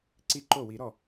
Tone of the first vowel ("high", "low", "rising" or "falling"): falling